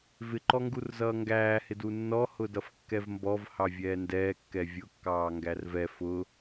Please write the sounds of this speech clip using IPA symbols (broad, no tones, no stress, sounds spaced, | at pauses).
v ɪ ǃ ɔ ŋ ɡ u r z ʌː ŋ ɡ æː h ɪ d u nː ɔ h ʊ d ʌ f kː ɛ v m b ɔ v h ɑ vʲ ɛː n d ɛː kː ɛ vʲ ʊ kː ɑː ŋ ɡ æ r v ɛ f ʊ